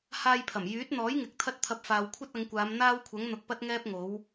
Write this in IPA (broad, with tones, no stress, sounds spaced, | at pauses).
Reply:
h aː˧ j pʰ ɐ˨˩ m j yː˨˥ t̚ n̪ ɔː˨˥ j ŋ ɪ˨ k̚ t̪ʰ ɐ˥ t̚ t̪ʰ ɐ˧ p̚ f aː˨ w kʷʰ ɐ˥ t̚ ɐ˨˧ ŋ kʷ aː˨˧ m n̪ aː˥ w kʷʰ ɐ˨˥ ŋ n̪ ʊ˨ k̚ p ɐ˥ t̚ ŋ ɛː˥ p̚ ŋ o˨˥ w